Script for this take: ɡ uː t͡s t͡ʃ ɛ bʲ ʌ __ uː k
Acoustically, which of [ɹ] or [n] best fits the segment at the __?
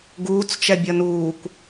n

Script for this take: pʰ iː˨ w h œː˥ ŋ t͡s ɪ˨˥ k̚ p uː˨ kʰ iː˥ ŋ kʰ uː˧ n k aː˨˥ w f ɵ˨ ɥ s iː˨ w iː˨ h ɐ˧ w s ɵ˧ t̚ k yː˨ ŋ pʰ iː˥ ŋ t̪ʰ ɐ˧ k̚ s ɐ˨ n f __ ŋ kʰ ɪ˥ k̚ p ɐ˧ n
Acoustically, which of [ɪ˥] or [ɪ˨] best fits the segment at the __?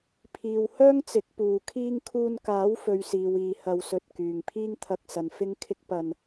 ɪ˥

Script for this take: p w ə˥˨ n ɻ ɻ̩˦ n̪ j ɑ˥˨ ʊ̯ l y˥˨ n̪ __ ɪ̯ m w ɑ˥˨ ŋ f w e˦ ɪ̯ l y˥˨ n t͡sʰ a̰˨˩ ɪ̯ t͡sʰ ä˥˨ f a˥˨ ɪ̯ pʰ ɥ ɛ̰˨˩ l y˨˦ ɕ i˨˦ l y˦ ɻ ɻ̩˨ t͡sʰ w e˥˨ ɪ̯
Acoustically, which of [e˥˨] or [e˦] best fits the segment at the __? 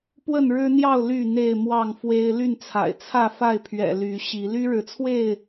e˥˨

